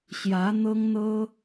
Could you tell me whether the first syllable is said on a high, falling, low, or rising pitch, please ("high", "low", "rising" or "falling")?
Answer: rising